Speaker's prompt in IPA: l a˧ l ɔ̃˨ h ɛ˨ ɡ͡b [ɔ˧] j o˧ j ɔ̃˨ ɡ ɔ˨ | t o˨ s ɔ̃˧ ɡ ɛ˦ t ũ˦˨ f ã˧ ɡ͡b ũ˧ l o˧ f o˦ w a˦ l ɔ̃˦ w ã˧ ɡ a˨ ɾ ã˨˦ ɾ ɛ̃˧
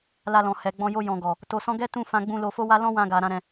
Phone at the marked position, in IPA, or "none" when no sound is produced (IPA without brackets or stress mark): ɔ̃˧